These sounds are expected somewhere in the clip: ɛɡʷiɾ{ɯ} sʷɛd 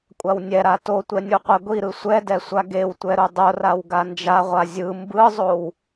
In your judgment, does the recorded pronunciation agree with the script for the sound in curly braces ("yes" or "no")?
yes